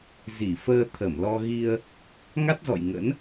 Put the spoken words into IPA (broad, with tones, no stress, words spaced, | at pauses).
zi˧˩ fəː˧t̪ʰə˧˩mlɔ˧ ɣi˧ə̯ | ŋa˦˥t̚zɔ̰˧˨j ŋə̰˧˥n